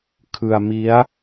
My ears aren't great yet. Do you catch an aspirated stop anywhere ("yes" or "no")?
yes